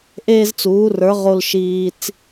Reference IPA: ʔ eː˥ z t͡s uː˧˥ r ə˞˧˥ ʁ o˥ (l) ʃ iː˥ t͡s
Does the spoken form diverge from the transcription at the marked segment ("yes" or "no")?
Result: no